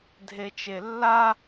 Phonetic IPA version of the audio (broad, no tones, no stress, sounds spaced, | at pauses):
dʱ e t͡ʃ e lː a